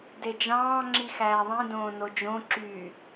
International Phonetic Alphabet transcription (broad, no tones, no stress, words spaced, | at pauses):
ded͡ʒɑ̃ː ŋ͡ǁixæːðˤĩ dõːnod͡ʒõ ǁy